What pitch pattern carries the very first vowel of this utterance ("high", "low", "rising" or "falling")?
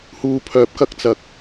low